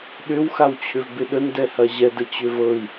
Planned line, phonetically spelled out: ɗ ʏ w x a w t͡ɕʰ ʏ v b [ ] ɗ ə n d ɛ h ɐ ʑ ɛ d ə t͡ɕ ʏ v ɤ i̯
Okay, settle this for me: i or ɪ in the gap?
ɪ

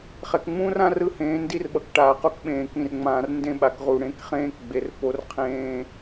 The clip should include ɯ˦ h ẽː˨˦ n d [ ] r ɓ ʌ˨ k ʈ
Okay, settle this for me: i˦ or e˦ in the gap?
i˦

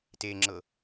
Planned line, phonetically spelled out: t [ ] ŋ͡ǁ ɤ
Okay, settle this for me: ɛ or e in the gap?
e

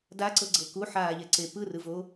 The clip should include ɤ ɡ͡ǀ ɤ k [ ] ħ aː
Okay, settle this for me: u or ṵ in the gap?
u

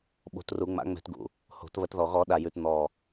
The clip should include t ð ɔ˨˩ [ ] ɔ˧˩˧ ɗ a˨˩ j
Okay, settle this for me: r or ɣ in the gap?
ɣ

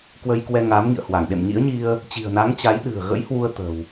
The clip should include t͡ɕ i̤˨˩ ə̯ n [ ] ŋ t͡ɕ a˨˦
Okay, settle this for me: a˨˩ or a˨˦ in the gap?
a˨˦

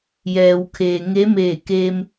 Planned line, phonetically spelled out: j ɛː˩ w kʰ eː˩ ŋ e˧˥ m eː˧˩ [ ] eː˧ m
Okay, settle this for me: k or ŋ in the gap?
k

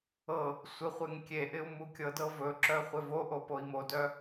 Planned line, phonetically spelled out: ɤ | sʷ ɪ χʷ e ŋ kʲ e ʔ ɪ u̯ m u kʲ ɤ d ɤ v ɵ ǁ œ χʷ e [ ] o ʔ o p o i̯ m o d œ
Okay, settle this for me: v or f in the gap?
v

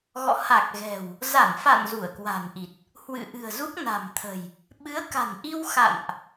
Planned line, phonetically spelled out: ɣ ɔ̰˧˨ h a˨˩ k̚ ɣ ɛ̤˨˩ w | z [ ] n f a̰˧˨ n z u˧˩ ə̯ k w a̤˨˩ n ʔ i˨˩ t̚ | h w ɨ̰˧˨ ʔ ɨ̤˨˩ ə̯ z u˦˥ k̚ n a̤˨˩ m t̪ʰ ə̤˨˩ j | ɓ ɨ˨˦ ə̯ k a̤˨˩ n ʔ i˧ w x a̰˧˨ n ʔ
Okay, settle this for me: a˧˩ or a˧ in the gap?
a˧˩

